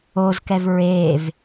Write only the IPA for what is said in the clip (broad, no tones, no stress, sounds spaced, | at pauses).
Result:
o z k ɛ v ɹ e v